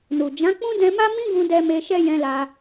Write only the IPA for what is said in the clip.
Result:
n u˨ d͡ʒ ã˨˦ k͡p ũ˦ d ɛ̃˧ m a˦ m ĩ˦ ɡ ũ˧ d ɛ˧ m e˧ ʃ ɛ˦ j ɛ̃˧ l a˧

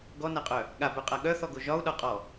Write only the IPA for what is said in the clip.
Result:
ɡ ɔ n a qʼ œ | ɠ a b œ qʼ a ɠ œ θ ɔ ɡ o ʒ ɒ u̯ ɗ ɒ qʼ ɔ

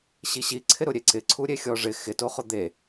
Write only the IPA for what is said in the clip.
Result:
ɕ i ɕ i ǀʰ ɪ ɾ ʊ ɾʲ e ǀ ɪ ǀʰ u ɾʲ e xʲ ɔ ʐ ɪ x ɪ t o χ ʊ d̪ e

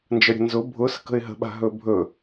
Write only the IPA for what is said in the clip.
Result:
n d͡ʒ ə ɾʲ ə̤ n z ʊ bʱ ʊ s ə̤ k ə̤ ɪ̯ ɦ ə̤ ɓ a̤ ɦ ɵ bʱ ɵ

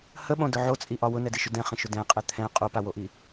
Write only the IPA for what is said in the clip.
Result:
h ə ɓ õ d ʊ ʕ o t͡sʼ i ʔ ɒ w ʊ n ɛ d i ʃ ʊ d ɛ̃ χ ə̃ ʃ ʊ d ɛ̃ qʼ ɛ t̪ʰ ɛ̃ qʼ o p a w o ʔ i

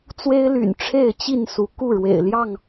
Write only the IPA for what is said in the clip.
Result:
t͡s w e˦ ɪ̯ l y̰˨˩ n ʈ͡ʂʰ e˥˨ ɪ̯ t͡ɕ i˥˨ n s u˨˦ k u˥˨ ɻ w ḛ˨˩ ɪ̯ l j ɑ˥˨ ŋ

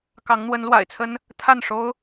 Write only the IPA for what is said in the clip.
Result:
k ɑ˧˥ ŋ n̪ w ə˧˥ n l w a̰˨˩ ɪ̯ t͡sʰ ə˥ n | t̪ʰ a˥˩ n ʂ o˥ ʊ̯

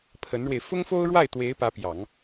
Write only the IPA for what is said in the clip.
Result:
pʰ ə˧˥ n ɻ w e˧ ɪ̯ f ʊ˥ ŋ f o˥ ʊ̯ ɻ w a˥˩ ɪ̯ t̪ w e˧˥ ɪ̯ p ä˧˥ p j ɑ˨˩˦ ŋ

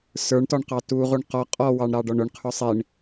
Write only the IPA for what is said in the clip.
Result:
s ə˞ ɳ t ɔ ɳ q ɑ t u ʁ u ɳ q ɔ qʼ ɔ w ɑ ɳ ɾ ɑ ɖ ɔ ɳ ʊ ɳ qʰ ʊ sˤ i ɳ

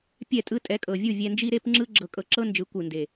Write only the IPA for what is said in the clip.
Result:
pʲ ɛ˦˨ tʼ ɯ˦ tʼ ɛ˨˦ kʼ ɤ˨ vʲ u˦˨ vʲ ɛ˧ n d͡ʒ i˦ ɾ e˦ p ŋ͡ǁ ɯ˦ ɡ͡ǁ ɤ˧ kʼ ɤ˧ ǁ ɤ˦ n d͡ʒ ɯ˨˦ kʷ ɯ˨ n d e˨

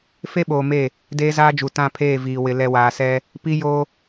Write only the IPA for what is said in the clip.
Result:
f e˦ ɓ oː˨ m e˦˨ | d eː˦ z aː˦ d͡ʒ u˨ t ã˦˨ pʰ eː˦˨ v iː˨ w ɪ˨ l ɛ˨ w aː˨ s ɛ˦ | p i˦ j o˦

